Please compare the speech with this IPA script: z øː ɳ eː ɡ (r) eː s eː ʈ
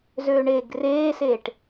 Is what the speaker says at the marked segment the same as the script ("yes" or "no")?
yes